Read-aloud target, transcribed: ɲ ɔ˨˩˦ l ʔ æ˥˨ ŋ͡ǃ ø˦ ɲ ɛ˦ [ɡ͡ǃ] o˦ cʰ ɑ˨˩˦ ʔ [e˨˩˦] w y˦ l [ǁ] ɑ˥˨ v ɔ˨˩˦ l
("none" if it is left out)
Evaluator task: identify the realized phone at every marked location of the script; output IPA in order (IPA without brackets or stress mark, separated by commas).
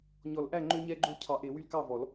ɡ͡ǃ, e˨˩˦, k